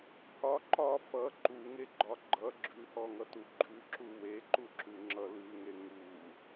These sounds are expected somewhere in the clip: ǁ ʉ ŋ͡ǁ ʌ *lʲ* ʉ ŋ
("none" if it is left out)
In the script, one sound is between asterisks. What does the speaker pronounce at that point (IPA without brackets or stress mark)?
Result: l